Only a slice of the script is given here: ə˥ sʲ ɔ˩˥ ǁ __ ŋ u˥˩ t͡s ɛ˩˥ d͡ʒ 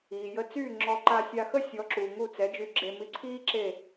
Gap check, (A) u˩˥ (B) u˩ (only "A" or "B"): B